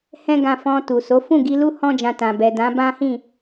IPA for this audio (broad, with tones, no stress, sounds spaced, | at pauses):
h ɛ̃˦ ɡ ã˧ f ɔ̃˧ t u˨ s o˨˦ f ũ˦˨ ɡ i˧ l u˦ h ɔ̃˦ d͡ʒ ã˧ t ã˨ b ɛ˨ d ã˨˦ b ã˦ h ĩ˦˨